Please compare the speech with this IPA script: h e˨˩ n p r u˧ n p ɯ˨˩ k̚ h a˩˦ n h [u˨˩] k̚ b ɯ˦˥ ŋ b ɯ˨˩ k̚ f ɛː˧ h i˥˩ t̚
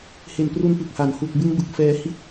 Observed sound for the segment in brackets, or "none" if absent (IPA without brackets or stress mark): u˨˩